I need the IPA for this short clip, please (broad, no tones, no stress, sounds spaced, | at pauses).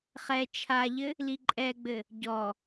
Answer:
χ ɛ t͡ʃʰ a ʎ ɘ | l i ǃʼ ɛ ɡ͡b ɘ | ɟ ɔ